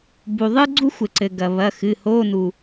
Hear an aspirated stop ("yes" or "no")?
no